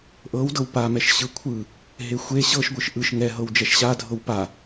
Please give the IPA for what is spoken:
ʔ ɤ w d ɤ w p a m ɛ ʃ ɕ ɯ kʷʰ ɯ | ɦ e xʷ e ɕ ɤ ʃ ɡʷ ɯ ʃ ʔ ɯ ʃ ŋ ɛ ɦ ɤ w d͡ʒ ɛ ʃ ɕ a dʱ ɤ w p a

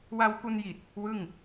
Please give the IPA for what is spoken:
w a˧ w k u˧ n j i˨˩ t̚ | w ɯ˥˩ ŋ

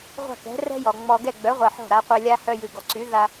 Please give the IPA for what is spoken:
ʁʷ a̤˥˩ k ɛ̤˩˥ r ɛ̤˥ j ɔ˩ ŋ͡m ɔ˧ ɡ ɛ˥˩ ɡ͡b œ˩˥ ʁʷ ɛ˩ ħ ɔ̤˥˩ ɾ a˩˥ qʷ ɛ˧ lʲ a˥ h œ˧ j ɨ˩ ɡ ɔ˩ ǀ y˩˥ ð a˧

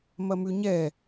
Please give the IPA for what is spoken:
m ɐ m ʉ ɲ ɛ

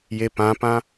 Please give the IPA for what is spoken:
j e p ã p ã

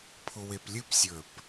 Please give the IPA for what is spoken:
pʰ ʊ w e p lʲ ɨ p sʲ ə˞ p

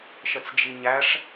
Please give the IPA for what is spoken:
ʃ ə t͡s d͡ʒ i ɲ æ ʂ

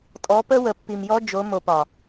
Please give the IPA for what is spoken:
tʼ ɔ˨˦ p ə˦ w ə˨ pː i˨ m j ɔ˦ d͡ʒ o˨˦ m o˨ p ɒ˨

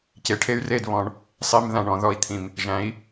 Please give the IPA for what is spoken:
c e˨ ʈʰ e˦ y̯ r e˦˨ d β ɔ̃˧ ɳ | sˤ i˧ m ð ã˨ ɳ ɔ̃˨ ð ɔ˧ i̯ t̪ʰ ĩ˨ m | ʒ æ̃˨˦ i̯

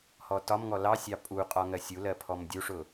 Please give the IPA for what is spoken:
h ɔ t ɒ m ŋ ɔ l ɑ sʲ ɑ pʼ u qʼ ɒ ŋ ɜ sʲ u l ɜ pʰ ɔ m dʲ u ʂ ʊ

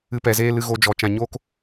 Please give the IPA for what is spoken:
ɨ˧ p ɛ˨ z eː˦ l ɨ˧ ɣ o˧ d͡ʒ ɔ˨ t͡ʃ ã˧ ɲ oː˦ k

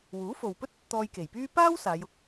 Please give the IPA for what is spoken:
w uː˨˥ f o˨ w p ɵ˥ t̚ | t̪ ɔː˧ j k e˨˩ j p yː˥ p aː˥ w s aː˨˧ j ʊ˧ k̚

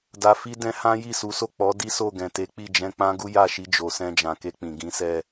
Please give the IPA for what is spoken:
d a˨ f i˧ d ɛ̃˧ h ã˦ j i˦˨ s u˨˦ s o˦˨ k͡p ɔ˨˦ d i˦ s o˦˨ ɡ ɛ̃˨ t e˨˦ k͡p i˦˨ d͡ʒ ɛ̃˧ k͡p ã˦ ɡ u˦ j a˦˨ ʃ i˧ d͡ʒ o˨ s ɛ̃˧ d͡ʒ ã˨ k e˧ k͡p ĩ˨ ɡ ĩ˨˦ s ɛ˧

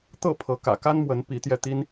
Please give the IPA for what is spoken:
t̪ ɤ˥˨ pʰ ɤ˨˦ k ä̰˨˩ k a˦ n m w ə˨˦ n p i˨˦ t̪ j ɛ˧ t̪ i˦ n

